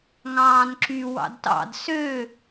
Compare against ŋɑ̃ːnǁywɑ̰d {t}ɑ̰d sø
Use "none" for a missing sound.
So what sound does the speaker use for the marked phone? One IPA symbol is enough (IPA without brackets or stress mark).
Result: t